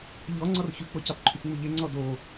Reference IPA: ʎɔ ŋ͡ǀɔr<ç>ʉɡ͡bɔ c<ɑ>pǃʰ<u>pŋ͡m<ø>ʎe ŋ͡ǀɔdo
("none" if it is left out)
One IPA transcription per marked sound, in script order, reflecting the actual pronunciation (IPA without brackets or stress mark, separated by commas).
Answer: ç, ɑ, ʉ, ʉ